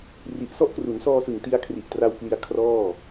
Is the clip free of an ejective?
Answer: yes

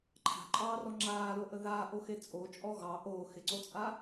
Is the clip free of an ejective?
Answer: no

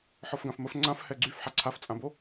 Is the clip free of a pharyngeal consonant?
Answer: no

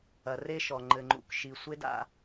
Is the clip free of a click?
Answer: no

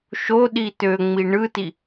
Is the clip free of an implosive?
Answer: no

